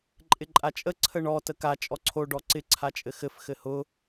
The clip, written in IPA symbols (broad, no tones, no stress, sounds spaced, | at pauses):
ǃʼ ɪ ǃʼ a t͡ʃʼ ə ǀʰ ə ɳ ɔ t ə k a t͡ʃʼ ɔ ǀʰ o ɖ ɔ ǀ ɪ ǀʰ a t͡ʃʼ ɘ x ɘ f x ɘ h ʊ